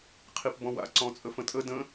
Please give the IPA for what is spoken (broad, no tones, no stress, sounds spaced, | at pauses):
qʰ i p b ɔ̃ w a̰ ǀ ɔ̃ t͡sʼ ə f ə̃ tʼ ə d ə̃